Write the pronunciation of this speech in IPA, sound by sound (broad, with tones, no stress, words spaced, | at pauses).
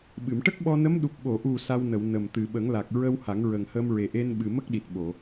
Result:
ɓɨ˨˩˨mʈə˦˥k̚ɓɔ˧nə˧˥m ɗu˨˩p̚ɓo˨˩˨ʔu˨˩ sa˧w nə˨˩˨w nə˨˩m t̪ɨ˨˩˨ɓə˨˩˦ŋla˨˩k̚ ɹə˧w ha˨˩˦ŋɹə˨˩ŋhə˧m ɹe˨˩ʔe˧n ɓɨ˨˩mə˦˥k̚ɗi˨˩t̚ɓo˨˩˨